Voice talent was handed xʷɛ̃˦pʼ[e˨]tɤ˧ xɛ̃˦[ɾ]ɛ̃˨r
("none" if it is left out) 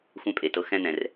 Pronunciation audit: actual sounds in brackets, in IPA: e˨, n̪

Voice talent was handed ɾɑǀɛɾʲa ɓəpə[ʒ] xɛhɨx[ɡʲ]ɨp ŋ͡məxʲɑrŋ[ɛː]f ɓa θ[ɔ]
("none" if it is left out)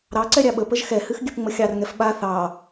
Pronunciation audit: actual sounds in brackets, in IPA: ʒ, ɡʲ, ɛ, ɑ

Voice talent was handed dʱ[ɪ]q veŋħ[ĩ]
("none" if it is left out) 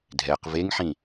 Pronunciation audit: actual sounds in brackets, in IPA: ɛ, ĩ

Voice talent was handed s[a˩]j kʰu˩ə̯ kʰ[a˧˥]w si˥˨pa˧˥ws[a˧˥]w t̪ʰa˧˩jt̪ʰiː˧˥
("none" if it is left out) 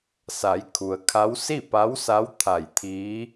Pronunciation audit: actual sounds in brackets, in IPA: a˩˧, a˧˥, a˧˥

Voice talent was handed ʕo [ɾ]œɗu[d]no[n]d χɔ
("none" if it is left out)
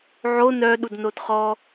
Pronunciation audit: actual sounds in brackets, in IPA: n, d, none

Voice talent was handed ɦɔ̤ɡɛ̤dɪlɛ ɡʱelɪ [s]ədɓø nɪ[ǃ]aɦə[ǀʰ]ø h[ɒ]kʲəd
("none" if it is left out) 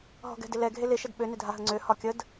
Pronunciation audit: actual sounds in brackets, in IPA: ʃ, dʱ, ŋ͡ǀ, ɒ

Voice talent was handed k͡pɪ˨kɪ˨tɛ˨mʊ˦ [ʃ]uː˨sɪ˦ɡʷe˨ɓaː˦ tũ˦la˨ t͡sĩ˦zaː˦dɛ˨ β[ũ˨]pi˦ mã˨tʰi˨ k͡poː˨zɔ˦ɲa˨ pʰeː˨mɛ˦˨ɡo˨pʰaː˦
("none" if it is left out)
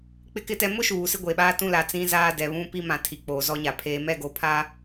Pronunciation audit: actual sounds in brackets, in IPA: ʃ, ũ˦

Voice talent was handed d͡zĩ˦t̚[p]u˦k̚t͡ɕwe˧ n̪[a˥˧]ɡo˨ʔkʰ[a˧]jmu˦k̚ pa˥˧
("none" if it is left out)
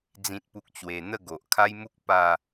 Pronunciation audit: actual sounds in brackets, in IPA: p, ə˥˧, a˦

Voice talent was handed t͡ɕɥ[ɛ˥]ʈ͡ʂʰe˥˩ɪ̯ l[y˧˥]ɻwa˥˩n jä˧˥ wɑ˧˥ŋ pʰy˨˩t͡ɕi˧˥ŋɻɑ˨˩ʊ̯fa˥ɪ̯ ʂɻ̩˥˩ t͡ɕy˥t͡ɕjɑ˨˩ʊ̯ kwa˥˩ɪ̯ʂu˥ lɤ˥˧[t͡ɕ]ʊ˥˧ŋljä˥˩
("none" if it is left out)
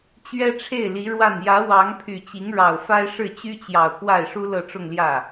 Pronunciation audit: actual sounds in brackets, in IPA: ɛ˥, i˧˥, ʈ͡ʂ

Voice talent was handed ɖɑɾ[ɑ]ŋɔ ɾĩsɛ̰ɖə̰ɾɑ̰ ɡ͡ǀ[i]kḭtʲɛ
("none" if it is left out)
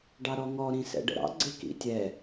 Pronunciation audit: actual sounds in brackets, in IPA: ɔ, ɪ

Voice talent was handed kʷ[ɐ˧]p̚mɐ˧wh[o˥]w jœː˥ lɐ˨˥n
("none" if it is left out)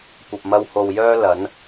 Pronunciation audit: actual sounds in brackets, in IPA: ɐ˨, o˨

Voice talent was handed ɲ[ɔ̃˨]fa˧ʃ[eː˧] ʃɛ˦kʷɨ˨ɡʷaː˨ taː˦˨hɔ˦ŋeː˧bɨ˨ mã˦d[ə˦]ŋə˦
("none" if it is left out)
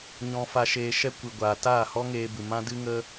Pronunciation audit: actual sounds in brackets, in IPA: ɔ̃˧, eː˧, ɨ˦

